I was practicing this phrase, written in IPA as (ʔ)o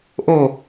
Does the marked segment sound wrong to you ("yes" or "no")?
no